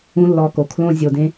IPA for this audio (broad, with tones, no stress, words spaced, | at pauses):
ũ˦lːɔ˧ko˨ kʰlõ˧zʲo˨dẽ˧